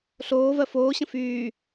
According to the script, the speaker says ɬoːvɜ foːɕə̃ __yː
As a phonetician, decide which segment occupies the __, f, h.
f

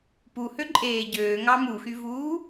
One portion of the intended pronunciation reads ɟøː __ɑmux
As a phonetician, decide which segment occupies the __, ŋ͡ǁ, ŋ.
ŋ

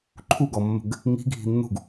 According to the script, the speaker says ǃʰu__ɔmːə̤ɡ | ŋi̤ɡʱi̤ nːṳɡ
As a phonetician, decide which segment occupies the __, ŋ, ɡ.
ɡ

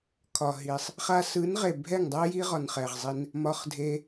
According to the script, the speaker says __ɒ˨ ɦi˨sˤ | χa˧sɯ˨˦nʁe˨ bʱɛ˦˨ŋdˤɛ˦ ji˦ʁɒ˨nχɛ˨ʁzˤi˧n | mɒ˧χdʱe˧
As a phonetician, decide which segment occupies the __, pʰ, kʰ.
kʰ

